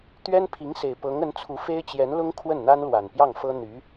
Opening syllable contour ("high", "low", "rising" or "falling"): high